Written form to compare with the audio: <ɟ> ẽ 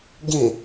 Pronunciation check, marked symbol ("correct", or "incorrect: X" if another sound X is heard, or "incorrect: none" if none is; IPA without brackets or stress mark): correct